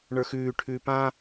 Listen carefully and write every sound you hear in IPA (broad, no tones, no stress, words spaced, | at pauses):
ɳə˞xʉːʈʰʉː pã